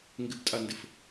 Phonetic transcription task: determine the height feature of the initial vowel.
high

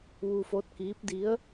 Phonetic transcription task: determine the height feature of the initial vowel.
high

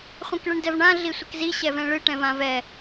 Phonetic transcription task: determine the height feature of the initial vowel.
mid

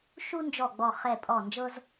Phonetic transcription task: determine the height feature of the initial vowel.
high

